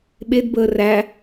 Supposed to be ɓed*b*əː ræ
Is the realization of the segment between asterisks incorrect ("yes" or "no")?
no